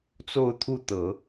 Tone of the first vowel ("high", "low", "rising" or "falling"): falling